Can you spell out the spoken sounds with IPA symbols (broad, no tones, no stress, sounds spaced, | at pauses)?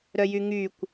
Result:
ɾ œ j y ŋ y kʷ